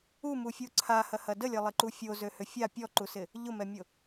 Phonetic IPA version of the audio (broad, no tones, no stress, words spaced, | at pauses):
umufʲu ǀʰahɐhɐ dəlʲɐlˠɪǃu fʲozøhʏ fʲa pʲɔǃusɪ | ʎʊmɛmʲʊ